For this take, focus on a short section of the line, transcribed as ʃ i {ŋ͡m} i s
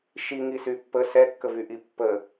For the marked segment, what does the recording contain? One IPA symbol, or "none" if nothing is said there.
ŋ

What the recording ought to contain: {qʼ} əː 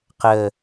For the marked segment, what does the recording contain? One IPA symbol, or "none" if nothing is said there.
q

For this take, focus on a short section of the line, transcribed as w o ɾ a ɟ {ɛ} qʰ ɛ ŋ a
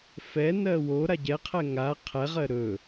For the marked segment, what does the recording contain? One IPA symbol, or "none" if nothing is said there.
ɛ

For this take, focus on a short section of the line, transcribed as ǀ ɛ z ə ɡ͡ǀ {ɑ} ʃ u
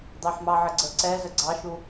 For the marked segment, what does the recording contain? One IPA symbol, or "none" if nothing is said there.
ɑ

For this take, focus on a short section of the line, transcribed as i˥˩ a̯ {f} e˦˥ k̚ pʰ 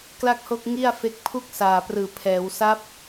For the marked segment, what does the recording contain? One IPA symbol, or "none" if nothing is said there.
f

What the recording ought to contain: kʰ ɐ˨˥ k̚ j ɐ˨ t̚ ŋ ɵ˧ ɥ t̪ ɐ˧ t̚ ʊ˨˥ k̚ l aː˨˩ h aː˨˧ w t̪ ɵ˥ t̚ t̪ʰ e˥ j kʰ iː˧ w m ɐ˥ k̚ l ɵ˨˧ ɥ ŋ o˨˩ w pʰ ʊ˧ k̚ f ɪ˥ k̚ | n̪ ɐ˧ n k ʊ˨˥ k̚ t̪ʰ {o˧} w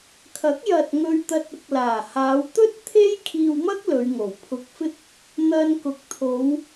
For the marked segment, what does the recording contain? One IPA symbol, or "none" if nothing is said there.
o˨˧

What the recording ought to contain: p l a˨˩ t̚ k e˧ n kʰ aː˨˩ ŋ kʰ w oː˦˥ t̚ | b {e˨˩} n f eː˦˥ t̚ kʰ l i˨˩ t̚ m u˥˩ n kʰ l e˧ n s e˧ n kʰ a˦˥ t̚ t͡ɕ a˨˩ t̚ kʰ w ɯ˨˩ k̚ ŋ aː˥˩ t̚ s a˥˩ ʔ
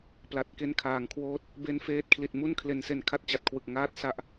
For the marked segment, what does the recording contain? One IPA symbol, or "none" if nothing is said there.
e˧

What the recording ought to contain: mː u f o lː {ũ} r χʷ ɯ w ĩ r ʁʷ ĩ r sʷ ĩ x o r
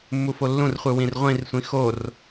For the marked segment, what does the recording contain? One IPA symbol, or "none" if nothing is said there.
ũ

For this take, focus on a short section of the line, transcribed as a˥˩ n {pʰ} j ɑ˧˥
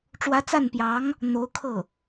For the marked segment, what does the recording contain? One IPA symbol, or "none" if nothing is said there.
p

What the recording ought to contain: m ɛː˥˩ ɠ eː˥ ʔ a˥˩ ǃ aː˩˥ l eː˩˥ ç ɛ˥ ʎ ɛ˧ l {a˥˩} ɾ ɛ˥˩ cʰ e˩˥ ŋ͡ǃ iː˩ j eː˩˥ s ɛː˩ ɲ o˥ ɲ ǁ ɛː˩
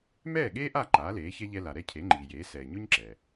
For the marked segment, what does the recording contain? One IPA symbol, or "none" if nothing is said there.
a˩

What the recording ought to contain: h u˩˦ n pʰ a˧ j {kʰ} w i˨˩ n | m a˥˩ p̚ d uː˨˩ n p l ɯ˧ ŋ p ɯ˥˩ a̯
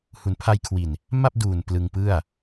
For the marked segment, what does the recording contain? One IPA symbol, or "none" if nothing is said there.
kʰ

